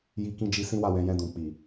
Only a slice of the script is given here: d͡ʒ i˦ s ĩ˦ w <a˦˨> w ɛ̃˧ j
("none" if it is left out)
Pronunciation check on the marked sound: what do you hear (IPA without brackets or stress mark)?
a˦˨